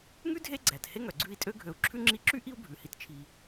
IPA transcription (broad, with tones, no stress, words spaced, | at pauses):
ŋʉ˥dʱe˦ ɡ͡ǀæ˩the˦ŋœ˩ ɡ͡ǀʉ˦i̯ tʼø˦ɡʱø˨u̯ǁʰʉ˥ŋ͡ǁi˦ ǁy˥ʔi˦u̯bʱʉ˩hi˨t t͡ʃʰi˩